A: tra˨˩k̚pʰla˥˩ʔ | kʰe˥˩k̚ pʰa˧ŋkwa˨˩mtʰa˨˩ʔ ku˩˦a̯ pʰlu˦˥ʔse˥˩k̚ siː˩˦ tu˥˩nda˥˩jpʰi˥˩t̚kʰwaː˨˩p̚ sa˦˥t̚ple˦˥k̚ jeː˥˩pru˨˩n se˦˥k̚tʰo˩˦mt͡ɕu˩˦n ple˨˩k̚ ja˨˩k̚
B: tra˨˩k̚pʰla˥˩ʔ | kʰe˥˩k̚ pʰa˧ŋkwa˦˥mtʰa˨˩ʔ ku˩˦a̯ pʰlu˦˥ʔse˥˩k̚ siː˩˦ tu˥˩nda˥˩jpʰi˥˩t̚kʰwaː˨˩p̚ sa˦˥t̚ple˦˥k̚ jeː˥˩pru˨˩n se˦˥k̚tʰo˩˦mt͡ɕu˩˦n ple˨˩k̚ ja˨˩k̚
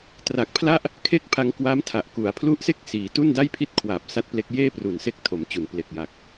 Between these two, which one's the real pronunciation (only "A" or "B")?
B